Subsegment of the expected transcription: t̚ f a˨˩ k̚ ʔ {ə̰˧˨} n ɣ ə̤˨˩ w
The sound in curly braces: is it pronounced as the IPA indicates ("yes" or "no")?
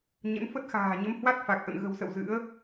yes